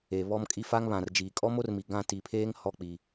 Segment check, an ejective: present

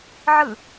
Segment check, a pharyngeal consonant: present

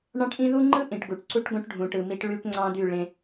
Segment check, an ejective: absent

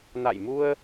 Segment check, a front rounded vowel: absent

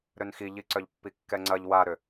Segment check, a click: present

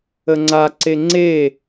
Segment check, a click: present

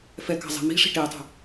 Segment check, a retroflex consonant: present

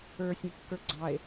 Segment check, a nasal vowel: present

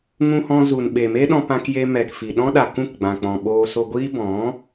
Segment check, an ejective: absent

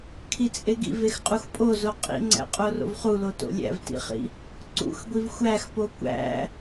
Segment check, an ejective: present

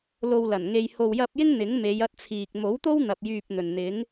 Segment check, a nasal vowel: absent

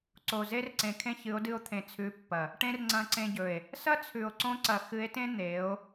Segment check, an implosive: absent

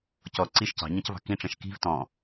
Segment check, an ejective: absent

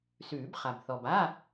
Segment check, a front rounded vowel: absent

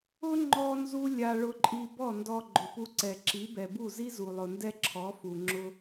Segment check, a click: present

